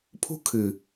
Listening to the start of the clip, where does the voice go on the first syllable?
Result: high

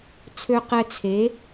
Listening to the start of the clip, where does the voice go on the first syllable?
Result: high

